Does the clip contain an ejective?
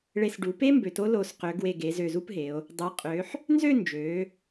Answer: yes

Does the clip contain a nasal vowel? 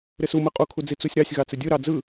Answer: no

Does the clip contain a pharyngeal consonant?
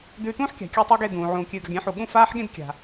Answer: yes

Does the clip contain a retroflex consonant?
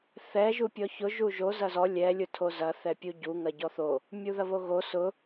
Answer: no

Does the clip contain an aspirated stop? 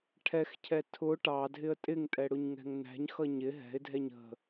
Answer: yes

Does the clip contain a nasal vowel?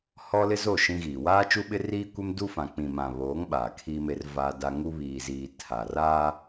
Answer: yes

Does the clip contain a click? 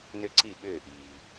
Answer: yes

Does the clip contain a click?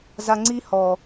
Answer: yes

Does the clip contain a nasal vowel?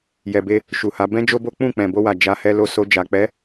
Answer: yes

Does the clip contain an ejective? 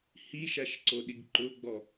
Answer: no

